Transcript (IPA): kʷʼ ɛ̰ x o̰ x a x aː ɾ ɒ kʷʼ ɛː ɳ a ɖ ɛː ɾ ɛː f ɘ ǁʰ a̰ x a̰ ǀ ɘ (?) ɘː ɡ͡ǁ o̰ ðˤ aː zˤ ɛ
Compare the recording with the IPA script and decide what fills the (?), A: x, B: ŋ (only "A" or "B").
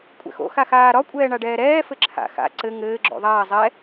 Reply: B